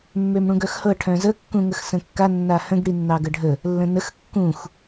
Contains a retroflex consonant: yes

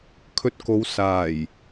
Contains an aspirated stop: yes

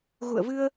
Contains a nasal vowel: no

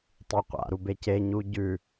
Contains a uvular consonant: yes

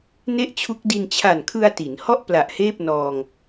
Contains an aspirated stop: yes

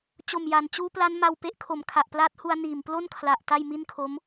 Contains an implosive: no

